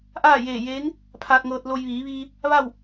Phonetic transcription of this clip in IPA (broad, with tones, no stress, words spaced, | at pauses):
ʔaː˥˨jeː˧˩jeː˧˥ŋ | pʰaː˧t̚ŋɤː˧t̚lo˧j ʋiː˩˧ʋiː˧ | ʋa˥˨w